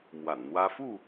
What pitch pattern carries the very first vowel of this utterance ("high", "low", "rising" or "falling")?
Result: low